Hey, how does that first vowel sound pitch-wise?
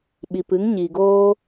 low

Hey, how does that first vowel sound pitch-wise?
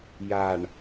low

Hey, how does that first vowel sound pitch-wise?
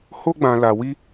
high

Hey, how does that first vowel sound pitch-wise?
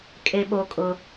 high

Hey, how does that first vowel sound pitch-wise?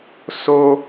low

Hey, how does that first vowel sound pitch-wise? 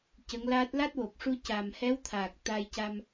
rising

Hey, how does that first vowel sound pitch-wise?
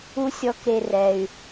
high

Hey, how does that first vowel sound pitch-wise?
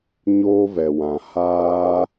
high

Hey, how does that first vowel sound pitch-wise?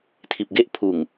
low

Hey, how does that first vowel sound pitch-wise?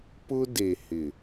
high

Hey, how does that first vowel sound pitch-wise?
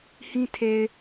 high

